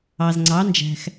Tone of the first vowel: low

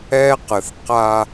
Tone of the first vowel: high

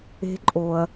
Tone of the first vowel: rising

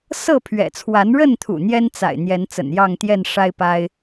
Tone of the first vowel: falling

